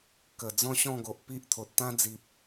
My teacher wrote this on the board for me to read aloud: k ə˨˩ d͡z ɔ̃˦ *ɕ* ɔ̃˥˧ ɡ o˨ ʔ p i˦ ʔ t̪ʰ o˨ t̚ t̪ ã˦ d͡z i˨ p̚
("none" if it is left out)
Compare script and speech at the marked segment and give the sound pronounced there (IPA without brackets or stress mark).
ɕ